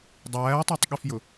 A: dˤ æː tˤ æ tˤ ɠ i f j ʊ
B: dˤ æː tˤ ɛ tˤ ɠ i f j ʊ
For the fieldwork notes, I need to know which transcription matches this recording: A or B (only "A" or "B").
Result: A